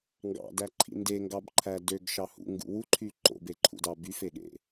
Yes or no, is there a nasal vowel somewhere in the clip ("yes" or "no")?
no